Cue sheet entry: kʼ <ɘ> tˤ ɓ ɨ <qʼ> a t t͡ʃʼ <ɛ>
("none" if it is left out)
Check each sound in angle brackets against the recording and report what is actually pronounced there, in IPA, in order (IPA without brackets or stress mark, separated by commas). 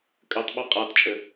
ɘ, qʼ, ɘ